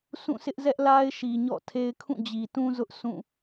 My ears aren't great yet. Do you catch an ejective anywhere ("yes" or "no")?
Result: no